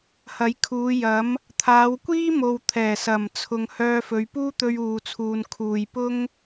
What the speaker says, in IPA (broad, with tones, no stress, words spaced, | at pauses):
hɐ˨˥jkʰuː˨˧jɐ˨˥m | t̪ʰaː˨˧wkʷiː˥mo˨w t̪ʰɛː˨˩sɐ˨˩mt͡sʰʊ˨ŋ hœː˧fɵ˨˧ɥpuː˥ t̪ɵ˧ɥuː˨t͡sʰuː˨n kʰuː˨jpʊ˥ŋ